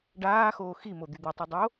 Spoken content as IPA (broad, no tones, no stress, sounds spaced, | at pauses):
ɖ aː x oː x i m o d̪ y d̪ y tˤ ʉ dˤ o